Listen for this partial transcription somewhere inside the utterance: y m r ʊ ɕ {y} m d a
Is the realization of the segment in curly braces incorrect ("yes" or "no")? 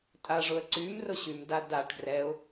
no